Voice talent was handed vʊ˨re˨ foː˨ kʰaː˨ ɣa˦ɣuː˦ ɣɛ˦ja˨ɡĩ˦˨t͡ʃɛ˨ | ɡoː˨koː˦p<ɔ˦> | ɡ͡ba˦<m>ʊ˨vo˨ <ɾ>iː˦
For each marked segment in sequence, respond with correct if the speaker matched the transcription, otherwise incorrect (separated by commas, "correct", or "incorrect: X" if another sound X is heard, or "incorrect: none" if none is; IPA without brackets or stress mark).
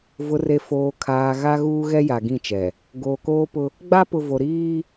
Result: incorrect: ʊ˦, incorrect: p, correct